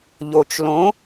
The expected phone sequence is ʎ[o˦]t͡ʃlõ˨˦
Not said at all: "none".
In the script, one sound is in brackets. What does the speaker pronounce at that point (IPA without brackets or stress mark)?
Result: o˨